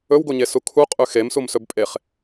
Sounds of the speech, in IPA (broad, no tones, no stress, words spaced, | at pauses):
ɵwɡoɲesu kʰuqʼʉ xemsumsɵb pʼeχ